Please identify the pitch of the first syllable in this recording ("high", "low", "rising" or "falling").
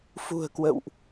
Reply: low